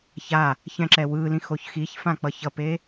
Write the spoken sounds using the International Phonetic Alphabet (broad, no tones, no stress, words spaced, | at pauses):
ça | çɛ̃ǁɛwɯlĩ xoçxiçfã k͡pʌçʌpe